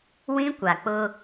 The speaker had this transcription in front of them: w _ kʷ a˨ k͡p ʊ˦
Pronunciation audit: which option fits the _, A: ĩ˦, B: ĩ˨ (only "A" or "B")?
A